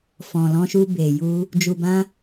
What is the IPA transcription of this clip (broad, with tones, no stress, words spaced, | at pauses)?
fɔ̃˨lɔ̃˧ʃu˧ be˨ju˧ | d͡ʒu˨bã˧